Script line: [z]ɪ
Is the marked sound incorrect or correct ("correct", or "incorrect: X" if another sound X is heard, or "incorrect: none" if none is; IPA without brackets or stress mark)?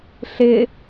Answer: incorrect: ɬ